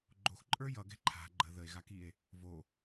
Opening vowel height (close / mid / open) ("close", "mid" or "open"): mid